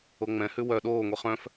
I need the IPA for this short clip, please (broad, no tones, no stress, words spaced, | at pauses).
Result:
oŋ͡mɛ̃hʉ wœ ɗoːŋʷi χœ̃f